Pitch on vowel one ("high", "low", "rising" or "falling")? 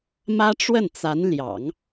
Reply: high